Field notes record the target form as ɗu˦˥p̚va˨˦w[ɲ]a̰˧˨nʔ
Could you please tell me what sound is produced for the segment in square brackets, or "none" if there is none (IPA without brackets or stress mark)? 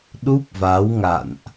ŋ